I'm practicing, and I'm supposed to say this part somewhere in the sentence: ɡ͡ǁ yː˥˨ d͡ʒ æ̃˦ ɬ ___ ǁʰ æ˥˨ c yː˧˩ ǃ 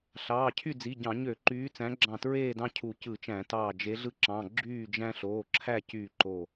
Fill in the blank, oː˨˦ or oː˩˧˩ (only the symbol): oː˩˧˩